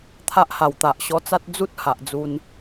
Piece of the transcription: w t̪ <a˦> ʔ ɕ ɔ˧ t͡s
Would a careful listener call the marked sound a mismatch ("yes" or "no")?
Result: yes